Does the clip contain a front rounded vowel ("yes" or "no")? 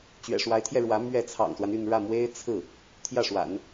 yes